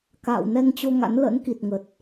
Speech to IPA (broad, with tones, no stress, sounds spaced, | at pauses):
k a̰ː˧˨ w n ɛ˧ ŋ t͡ɕ o˧ ŋ a̰˧˥ n l ə̰˧˥ n k i˨˩ t̚ ŋ ə˨˩ t̚